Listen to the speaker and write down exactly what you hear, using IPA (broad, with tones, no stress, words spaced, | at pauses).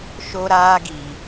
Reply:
ʃo˦ɾaː˦ɡi˨